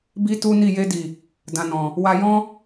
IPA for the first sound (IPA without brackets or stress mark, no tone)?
b